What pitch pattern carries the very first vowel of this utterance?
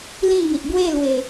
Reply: falling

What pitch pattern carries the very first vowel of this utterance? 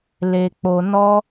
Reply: low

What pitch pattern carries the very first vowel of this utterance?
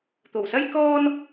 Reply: low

